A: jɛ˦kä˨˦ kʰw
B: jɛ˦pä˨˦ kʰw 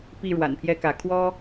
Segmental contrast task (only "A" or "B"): A